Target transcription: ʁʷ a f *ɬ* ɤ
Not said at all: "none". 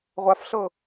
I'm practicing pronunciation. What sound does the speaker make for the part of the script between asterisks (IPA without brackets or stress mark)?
ɬ